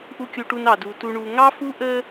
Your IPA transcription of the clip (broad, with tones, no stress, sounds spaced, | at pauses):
ʔ u˨ kʲ u˨ ʈ u˨ n ɑ˨ d u˨ t u˨ ɳ u˨ ŋ ɑ˦ f u˦ ʔ ə˦